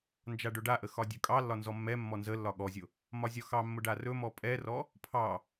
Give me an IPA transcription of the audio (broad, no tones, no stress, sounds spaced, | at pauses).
n d͡ʒ a ɖ ɵ ɖ a ʔ ə x ɒ dʲ ɵ kʼ ɑ lː ɒ n z ɔ mː ɛ mː ɔ n z ə lː ɒ ɠ ɔ zʲ ʊ | m ɒ zʲ ɒ x ɑ mː ʊ ɖ a r ɵ m ɔ pʼ ɛ r ɔ | pʰ ɑ